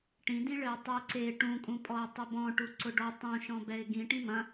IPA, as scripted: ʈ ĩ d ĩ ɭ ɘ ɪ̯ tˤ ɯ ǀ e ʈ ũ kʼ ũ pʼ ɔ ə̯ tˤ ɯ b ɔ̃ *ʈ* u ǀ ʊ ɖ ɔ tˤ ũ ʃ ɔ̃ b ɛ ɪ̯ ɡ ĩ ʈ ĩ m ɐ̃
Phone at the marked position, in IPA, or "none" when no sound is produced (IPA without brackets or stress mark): ʈ